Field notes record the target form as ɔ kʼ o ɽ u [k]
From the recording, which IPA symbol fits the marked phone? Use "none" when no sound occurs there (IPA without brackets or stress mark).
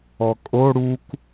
k